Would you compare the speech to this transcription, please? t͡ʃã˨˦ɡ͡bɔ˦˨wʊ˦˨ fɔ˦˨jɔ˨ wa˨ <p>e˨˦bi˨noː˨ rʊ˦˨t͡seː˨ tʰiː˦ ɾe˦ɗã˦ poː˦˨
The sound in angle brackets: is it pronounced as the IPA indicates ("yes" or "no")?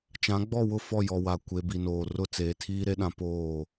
no